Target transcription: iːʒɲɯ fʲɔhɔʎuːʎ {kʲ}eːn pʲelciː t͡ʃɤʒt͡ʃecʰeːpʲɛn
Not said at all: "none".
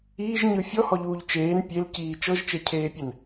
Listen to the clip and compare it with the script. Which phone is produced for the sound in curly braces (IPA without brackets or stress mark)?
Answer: t͡ʃ